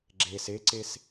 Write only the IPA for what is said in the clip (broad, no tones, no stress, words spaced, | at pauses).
ɡ͡ǁes eǀes